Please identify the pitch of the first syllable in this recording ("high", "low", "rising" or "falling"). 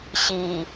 low